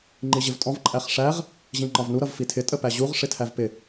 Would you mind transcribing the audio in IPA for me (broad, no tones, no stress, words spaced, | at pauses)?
ŋ͡ǃiʑɪvtʼɔ̃v ǃʼæχʂæʁ | ʑĩŋ͡ǃɒvnu ɾʌvfitʰɪ tʼəpæʑuʁ ʂɪtʰævpɪ